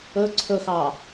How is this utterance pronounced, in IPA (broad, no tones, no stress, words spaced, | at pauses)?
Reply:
ɵ ǀʰɵxɑ